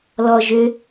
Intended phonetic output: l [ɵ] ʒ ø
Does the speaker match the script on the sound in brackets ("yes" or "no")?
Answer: no